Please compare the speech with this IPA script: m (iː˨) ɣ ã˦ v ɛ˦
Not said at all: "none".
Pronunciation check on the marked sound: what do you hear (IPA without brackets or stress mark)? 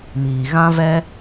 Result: iː˨